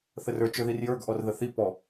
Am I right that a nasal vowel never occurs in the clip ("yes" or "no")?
yes